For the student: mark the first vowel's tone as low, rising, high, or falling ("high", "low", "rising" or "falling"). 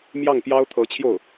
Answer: falling